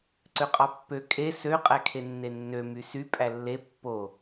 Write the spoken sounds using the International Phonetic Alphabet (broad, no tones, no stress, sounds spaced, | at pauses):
ǀ ø qʼ ɑ pː ø kʼ e s ø qʼ æ kʰ e nː e nː ø m y s y pʼ æ lː e pː o